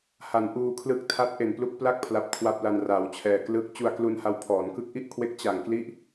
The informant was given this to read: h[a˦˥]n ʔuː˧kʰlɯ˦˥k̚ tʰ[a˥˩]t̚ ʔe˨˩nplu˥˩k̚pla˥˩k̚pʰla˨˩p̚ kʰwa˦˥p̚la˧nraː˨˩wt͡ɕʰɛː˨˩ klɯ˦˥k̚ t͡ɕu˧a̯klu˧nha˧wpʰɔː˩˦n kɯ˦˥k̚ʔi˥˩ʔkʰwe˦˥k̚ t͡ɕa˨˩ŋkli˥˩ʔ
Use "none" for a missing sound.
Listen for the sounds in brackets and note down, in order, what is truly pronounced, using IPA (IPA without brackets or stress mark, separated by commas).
a˩˦, a˦˥